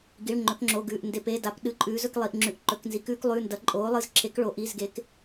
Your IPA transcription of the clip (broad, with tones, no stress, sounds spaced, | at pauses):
ɡ i˩˧˩ ɭ ŋ͡ǃ ɵ˩˧ k ŋ͡ǁ o˩˧˩ ɡ ʉː˩˧˩ ʔ n d e˩˧˩ p e˩˧˩ d a˩˧ p ɗ ɨ˩˧˩ ǃʼ ʉː˩˧ z ɵ˩˧ k lˠ i˩˧˩ ʔ ŋ͡ǁ ʉ˩˧˩ ʔ ǃ ɵ˩˧˩ k n z i˩˧ k ʉː˩˧ k lˠ ʉː˩˧˩ n d ɐ˩˧ ǃʼ oː˩˧ lˠ ɨ˩˧ z ǁʰ e˩˧ k ɭ o˩˧ ʔ i˩˧˩ z ɡ e˩˧ k